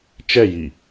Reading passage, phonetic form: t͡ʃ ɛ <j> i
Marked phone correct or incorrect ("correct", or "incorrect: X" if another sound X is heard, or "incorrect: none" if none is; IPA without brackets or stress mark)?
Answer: correct